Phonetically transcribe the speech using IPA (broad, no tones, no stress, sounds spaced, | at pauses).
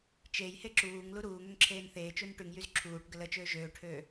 t͡ʃ e j h e ǁ uː ŋ l u ɾ uː ŋ ø ŋ ǁʰ eː n θ eː t͡ʃ u n ʈ y ŋ j y z ǁʰ uː ʈ ɡ ə l ə t͡ʃ øː ʒ øː ʈʰ øː